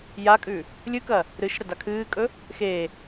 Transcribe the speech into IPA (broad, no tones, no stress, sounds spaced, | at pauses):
j a kʼ ʉ | lʲ ɨ k ɐ | ɾ ɨ ʃ ɾ ɐ d a kʰ ɨː kʼ ɵ | x e